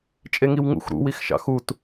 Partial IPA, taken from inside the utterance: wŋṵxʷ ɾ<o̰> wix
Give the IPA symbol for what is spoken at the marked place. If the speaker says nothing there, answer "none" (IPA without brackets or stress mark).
ṵ